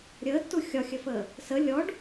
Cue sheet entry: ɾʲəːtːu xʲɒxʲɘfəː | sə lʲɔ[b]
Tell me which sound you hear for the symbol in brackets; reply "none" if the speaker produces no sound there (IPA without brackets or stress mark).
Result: ɖ